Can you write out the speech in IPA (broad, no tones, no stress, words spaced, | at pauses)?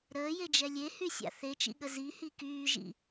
ɾəːjed͡ʒɛ lʲehysʲa̰ θet͡ʃḭɠə zihi kyːʒḭ